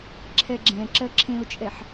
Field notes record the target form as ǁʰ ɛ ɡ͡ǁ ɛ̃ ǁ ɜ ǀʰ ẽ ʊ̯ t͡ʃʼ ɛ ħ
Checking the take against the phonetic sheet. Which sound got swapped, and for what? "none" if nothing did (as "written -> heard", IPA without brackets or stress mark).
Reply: ǀʰ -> ǁʰ